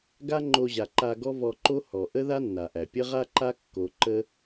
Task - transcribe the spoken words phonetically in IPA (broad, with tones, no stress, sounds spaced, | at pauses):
ɡ a˦ ŋ͡ǃ o˧ ʑ a˨ ǃ a˧ ɡ ɔ˦ v ɔ˧ ǃ o˦ h ɔ˨ ʔ ə˦ ð a˦ nː a˨ ʔ æ˨ pʲ ə˦ ʁ a˦ ǃ a˦ kː o˧ ǃ ə˦